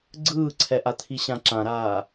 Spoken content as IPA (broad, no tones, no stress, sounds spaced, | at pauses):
ɡ͡ǀ ɯː ǀʰ ɛ ʔ a t̪ʰ i ɕ ã ǁ ã ɾ aː